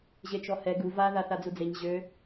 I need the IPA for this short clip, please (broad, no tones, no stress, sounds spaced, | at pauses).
ʑ e t͡ʃ ɔ h ɛ ɡ u v a ð a θ a d͡z u d͡z e ɲ ʑ ø